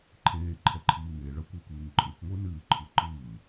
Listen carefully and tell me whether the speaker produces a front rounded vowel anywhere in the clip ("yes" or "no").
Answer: no